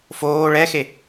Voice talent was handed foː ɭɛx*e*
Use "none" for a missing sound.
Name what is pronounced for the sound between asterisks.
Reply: e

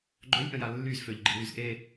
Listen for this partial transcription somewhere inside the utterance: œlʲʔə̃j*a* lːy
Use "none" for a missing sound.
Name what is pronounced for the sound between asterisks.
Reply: a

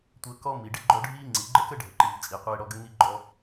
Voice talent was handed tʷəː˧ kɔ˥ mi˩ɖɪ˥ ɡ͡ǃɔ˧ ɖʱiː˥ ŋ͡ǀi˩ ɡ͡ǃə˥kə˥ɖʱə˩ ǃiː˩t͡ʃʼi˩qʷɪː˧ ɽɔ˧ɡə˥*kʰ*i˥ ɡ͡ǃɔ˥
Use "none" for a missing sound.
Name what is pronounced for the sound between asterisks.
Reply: ŋ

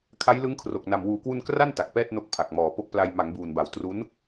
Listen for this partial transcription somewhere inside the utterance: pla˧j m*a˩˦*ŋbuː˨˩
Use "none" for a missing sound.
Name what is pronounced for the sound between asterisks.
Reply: a˩˦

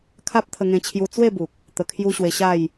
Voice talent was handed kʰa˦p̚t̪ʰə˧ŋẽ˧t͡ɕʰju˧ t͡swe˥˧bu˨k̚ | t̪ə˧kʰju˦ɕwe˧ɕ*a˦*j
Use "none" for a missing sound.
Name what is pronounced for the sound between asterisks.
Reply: a˥˧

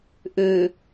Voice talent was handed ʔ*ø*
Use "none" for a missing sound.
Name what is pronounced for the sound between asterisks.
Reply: ø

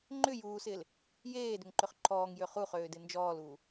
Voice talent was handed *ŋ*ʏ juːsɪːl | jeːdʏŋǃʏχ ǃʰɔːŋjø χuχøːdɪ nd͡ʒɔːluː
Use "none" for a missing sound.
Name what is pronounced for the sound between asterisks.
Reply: ŋ͡ǃ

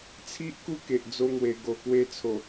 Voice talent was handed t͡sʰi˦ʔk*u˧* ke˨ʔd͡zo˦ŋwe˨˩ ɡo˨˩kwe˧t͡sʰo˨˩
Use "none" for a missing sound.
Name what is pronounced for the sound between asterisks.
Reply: u˦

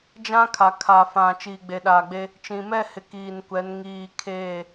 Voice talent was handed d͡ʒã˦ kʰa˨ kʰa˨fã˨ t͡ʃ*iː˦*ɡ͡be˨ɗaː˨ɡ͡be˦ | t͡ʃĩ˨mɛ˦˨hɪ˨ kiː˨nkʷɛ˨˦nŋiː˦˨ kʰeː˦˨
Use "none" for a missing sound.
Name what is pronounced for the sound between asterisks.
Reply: iː˨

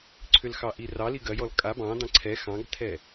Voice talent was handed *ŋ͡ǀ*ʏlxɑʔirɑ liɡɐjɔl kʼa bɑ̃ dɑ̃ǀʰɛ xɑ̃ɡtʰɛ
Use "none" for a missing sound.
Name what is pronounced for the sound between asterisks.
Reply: ǀʰ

